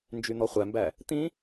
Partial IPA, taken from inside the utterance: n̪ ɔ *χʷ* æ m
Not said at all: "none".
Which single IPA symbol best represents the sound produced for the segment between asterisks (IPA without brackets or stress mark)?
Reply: χʷ